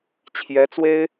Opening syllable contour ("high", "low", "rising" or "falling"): rising